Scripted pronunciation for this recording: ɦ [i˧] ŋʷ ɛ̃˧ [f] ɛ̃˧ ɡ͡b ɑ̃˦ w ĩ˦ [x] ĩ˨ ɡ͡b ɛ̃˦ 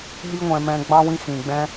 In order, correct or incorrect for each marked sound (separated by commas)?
incorrect, incorrect, correct